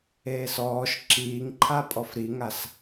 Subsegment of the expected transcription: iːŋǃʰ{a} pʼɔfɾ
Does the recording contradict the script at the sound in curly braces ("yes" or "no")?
no